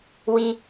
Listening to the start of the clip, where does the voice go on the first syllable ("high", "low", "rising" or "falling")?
high